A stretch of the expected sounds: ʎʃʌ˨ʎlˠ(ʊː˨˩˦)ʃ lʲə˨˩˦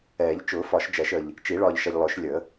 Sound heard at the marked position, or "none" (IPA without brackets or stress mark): ʊː˨˩˦